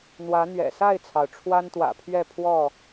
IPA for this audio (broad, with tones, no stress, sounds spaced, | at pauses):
n̪ w ä˨˦ n̪ ɥ ɛ̰˨˩ s a˥˨ ɪ̯ t͡sʰ ɑ˩ ʊ̯ ʈ͡ʂʰ w a˦ n t̪ w ä̰˨˩ pʰ ɥ ɛ˥˨ pʰ w ɔ˥˨